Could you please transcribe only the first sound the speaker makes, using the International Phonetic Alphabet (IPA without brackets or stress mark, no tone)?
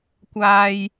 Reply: kʷ